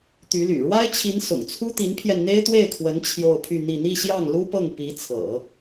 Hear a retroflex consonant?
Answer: yes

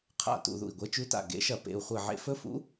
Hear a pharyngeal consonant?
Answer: yes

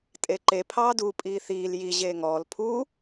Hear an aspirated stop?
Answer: yes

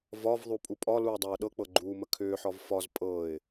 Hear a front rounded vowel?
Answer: yes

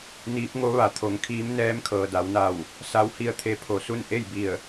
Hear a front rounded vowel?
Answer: no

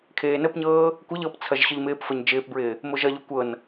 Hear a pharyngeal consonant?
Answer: no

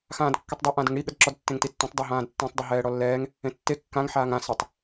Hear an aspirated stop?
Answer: no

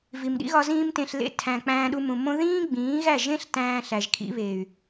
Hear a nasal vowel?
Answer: yes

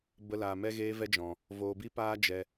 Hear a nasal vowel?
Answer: yes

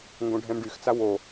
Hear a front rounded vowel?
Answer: yes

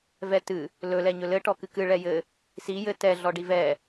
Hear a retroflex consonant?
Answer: yes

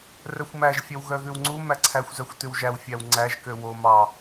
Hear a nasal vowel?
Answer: no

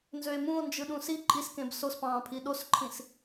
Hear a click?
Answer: yes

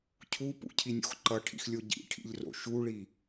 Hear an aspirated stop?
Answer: yes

